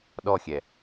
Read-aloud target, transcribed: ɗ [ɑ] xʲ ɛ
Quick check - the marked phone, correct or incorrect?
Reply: incorrect